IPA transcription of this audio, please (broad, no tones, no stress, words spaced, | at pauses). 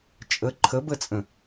t͡ʃʼə ǃʰəbət͡sʼə̃